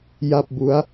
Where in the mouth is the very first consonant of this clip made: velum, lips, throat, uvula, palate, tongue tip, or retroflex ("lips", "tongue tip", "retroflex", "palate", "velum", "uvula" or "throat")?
palate